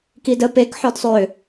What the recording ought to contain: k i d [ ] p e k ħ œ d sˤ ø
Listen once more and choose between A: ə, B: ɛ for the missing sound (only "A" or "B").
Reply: A